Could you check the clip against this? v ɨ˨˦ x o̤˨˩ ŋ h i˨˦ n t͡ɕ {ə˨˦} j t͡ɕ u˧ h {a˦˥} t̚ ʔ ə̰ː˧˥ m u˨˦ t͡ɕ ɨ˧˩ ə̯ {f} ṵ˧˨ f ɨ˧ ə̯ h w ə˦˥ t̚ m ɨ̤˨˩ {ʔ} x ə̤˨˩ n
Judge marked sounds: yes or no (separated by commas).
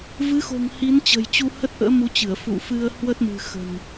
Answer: no, no, yes, no